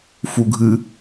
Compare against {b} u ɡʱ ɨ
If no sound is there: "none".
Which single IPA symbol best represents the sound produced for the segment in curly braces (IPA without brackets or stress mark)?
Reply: f